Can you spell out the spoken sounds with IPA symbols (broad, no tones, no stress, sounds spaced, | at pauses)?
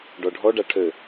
ɖ ɔ ɖʱ ɔ ɖ a ʈʰ ø